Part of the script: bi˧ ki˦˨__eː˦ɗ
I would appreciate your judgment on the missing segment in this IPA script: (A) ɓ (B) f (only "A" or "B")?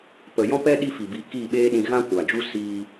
A